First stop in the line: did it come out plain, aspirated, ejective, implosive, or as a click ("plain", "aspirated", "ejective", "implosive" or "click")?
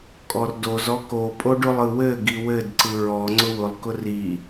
ejective